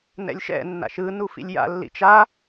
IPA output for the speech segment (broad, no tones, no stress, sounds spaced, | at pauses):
n ɛ̰ lʲ ʃ ɛ̰ nː a̰ ʃ ɯ n u f ḭ lʲ j a̰ lː ḭ t͡ʃ a